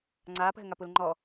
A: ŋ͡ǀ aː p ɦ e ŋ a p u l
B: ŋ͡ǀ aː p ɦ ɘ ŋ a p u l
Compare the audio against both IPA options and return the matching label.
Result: B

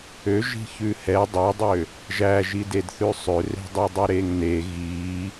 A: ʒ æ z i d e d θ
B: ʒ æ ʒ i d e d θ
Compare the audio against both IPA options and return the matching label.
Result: B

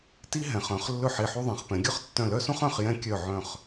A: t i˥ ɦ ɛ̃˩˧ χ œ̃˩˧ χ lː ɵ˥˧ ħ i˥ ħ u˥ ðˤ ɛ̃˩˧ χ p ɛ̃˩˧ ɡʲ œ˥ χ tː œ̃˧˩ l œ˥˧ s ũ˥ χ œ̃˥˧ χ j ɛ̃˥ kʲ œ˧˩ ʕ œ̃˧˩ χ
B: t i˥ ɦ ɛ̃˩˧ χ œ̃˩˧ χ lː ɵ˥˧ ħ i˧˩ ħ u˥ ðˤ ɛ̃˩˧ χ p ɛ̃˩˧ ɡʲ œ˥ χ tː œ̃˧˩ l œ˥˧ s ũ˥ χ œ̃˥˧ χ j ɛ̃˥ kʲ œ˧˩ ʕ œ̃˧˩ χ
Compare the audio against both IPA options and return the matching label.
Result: B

